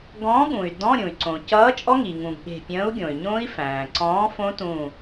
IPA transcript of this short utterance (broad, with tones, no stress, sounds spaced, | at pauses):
ɡ ɔ̃˨˥ ɠ ũ˩ y̯ d ɔ̃˧˥˧ ɾʲ ũ˩ y̯ ǀ õ˩ c ʌː˨˥ t͡ʃʼ ɔ˦˥ ŋ i˩ ŋ ũ˩ ɡ ɠ e̤˧˩ pʲ ə̃ː˨˥ u̯ ɡʲ õ˩ y̯ ɲ õ˦˥ i̯ f æ̃ː˩ ǀ ɔ̃ː˨˥ f õ˦˥ t ũ˧˩